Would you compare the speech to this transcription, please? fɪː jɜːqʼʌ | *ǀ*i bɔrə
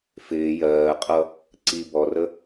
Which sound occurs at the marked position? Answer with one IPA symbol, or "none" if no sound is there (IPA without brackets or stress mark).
ǀ